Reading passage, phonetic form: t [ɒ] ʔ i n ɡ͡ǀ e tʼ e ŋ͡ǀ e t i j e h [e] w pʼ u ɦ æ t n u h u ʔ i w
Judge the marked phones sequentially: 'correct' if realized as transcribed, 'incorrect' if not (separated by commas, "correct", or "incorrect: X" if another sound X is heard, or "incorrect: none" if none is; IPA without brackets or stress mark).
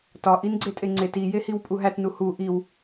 correct, incorrect: i